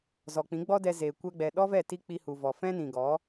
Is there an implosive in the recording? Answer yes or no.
yes